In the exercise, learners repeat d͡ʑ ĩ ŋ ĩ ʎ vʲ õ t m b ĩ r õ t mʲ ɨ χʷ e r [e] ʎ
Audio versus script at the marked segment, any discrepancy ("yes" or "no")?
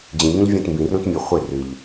yes